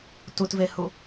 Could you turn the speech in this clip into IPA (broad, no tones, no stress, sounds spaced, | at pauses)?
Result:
t u t v e h u